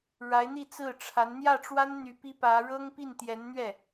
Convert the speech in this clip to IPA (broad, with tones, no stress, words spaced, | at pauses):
ɻa˧˥ɪ̯n̪i˥˧ t͡sɹ̩˥˩ʈ͡ʂʰa˧˥n n̪jä˥˩ʈ͡ʂwa˥n n̪y˧˥pi˥pä˧˥ ɻɤ˥ŋpi˥˩nt̪jɛ˧˥nn̪ɥɛ˥˩